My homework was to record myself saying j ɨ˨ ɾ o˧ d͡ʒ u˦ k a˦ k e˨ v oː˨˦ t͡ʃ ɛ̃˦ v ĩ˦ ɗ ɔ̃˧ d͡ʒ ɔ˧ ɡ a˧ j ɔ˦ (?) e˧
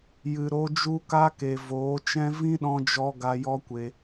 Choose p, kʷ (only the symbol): kʷ